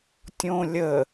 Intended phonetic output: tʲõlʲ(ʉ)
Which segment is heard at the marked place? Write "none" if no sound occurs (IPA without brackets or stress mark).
ə